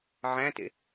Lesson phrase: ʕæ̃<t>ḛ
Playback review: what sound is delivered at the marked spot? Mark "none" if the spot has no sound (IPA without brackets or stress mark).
t